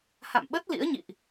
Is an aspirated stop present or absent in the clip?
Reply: absent